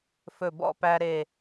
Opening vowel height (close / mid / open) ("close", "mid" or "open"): mid